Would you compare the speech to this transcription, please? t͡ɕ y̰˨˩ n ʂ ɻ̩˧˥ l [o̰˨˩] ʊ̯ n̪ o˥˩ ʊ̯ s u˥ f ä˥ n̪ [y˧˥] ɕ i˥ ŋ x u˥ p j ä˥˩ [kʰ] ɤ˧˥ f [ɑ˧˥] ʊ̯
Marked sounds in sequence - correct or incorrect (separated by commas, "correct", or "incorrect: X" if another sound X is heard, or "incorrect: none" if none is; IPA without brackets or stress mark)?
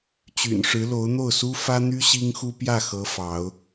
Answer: incorrect: o˧˥, incorrect: y˥, incorrect: x, correct